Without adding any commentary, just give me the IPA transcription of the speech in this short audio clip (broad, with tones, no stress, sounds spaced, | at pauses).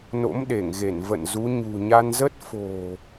n o̰˧˥ m ɗ e˧˩ ŋ ɣ e˧˩ n v ə̰˧˨ n z u˨˦ ɲ ṳ˨˩ ɲ a˧ n z ə˦˥ t̚ f o̤˨˩